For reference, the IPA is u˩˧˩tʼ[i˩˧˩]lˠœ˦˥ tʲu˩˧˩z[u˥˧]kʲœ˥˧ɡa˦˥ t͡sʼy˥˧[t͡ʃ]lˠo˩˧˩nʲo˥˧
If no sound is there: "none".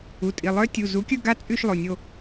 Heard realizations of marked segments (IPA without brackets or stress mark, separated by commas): i˩˧˩, u˨˥, ʃ